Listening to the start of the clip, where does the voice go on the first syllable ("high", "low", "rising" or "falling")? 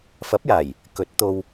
rising